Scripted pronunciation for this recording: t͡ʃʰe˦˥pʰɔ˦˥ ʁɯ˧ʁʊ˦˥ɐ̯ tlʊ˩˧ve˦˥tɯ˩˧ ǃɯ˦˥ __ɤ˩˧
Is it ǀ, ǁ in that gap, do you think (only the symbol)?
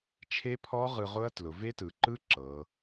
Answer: ǁ